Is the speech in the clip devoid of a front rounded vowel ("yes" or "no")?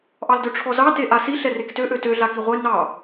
no